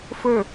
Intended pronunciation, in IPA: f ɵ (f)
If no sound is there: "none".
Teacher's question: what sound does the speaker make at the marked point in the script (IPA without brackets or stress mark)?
none